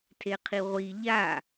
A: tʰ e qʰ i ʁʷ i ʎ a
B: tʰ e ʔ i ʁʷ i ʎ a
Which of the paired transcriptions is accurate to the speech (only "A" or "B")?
A